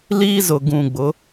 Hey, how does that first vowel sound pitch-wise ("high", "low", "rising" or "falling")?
high